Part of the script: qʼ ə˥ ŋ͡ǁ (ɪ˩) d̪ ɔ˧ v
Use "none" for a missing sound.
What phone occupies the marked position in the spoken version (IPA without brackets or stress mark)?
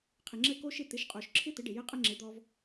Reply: ɪ˩˥